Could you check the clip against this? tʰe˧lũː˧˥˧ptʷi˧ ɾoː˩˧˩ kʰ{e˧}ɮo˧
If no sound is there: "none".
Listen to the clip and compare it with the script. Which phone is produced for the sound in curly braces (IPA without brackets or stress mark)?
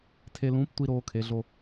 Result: e˧